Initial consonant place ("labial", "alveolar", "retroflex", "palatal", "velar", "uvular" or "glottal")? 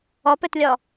labial